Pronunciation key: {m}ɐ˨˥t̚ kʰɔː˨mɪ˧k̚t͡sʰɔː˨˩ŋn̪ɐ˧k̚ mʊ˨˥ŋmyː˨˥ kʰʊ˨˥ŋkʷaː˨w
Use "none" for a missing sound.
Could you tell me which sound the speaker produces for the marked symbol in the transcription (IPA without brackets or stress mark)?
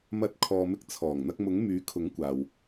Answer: m